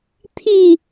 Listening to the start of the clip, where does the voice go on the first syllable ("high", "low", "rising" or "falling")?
falling